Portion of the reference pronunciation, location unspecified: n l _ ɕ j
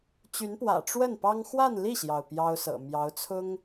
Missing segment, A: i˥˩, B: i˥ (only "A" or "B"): A